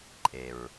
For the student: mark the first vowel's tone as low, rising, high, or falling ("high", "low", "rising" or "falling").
low